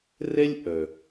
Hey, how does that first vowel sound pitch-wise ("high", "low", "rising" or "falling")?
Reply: high